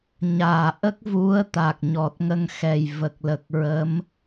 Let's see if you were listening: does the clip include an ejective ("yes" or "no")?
no